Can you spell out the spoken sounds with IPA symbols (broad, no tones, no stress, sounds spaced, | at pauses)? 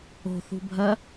o̤ θ ṳ bʱ ɜ